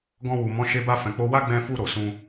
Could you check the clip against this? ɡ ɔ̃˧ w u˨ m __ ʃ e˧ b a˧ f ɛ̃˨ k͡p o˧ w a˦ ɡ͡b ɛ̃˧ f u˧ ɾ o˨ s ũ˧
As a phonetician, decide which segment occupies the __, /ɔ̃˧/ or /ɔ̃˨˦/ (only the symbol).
ɔ̃˨˦